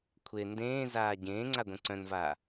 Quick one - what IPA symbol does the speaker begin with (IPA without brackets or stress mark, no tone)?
kʷʰ